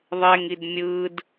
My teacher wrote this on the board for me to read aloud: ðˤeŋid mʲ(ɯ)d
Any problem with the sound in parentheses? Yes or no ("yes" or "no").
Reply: no